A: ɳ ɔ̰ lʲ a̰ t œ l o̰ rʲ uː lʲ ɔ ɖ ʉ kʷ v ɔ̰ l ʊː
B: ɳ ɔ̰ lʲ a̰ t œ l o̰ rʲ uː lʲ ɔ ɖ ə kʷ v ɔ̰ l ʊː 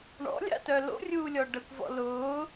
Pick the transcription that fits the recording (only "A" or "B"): B